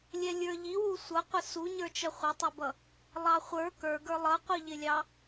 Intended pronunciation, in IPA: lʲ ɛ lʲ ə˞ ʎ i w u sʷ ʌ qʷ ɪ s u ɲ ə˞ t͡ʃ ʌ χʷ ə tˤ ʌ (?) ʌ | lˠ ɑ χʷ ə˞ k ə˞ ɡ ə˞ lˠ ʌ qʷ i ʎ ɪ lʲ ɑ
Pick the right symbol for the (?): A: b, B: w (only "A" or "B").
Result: A